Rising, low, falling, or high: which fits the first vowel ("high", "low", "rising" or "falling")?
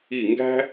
falling